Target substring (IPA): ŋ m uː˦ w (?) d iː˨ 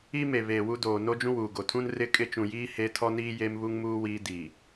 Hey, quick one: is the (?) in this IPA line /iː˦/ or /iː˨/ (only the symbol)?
iː˦